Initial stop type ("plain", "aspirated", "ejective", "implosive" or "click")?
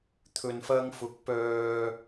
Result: aspirated